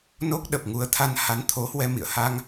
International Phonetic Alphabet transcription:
n o˦˥ k̚ ɗ ə˨˩ p̚ ŋ u˨˦ ə̯ t̪ʰ a˧ n h a˨˦ n t̪ʰ o˨˦ h w ɛ˧ m ḭ˧˨ ə̯ h a˧ ŋ

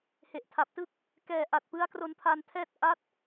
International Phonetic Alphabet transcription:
h e˨˩ ʔ tʰ a˨˩ p̚ t ɯ˥˩ k̚ | k ɛː˨˩ ʔ a˨˩ t̚ p ɯ˦˥ a̯ k r o˧ n pʰ a˧ n tʰ ɛː˥˩ t̚ ʔ a˦˥ t̚

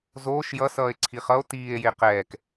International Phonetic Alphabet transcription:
z oː ʃ j ʌ s ʌː e̯ ǀʰ i χ ʌ o̯ t iː e̯ j e q ɛː k

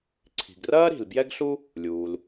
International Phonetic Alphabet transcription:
ǀʰ i̤˩ ɡ r ɐː˥ ɾ i̤˩ l b j ɛ˥ ɡ ɬ u˥ | lʲ uː˩ l

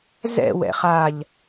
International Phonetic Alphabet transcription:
z ɛ̰ w ɛ̰ χ a ʎ

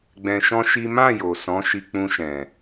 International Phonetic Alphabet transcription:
ɡ͡b ɛ̃˧ ʃ ɔ̃˦ ʃ i˦ m ã˦˨ j o˨ s ɔ̃˨˦ ʃ i˧ k͡p ũ˧ ʃ ɛ̃˨

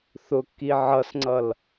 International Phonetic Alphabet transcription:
θ ʊ kː i ʕ ʌ s ŋ͡ǀ ʌ l

